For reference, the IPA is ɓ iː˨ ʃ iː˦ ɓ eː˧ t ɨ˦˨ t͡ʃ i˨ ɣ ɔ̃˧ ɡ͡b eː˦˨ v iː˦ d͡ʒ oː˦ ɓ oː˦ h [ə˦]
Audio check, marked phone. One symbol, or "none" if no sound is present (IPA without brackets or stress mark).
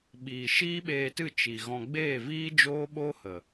ə˨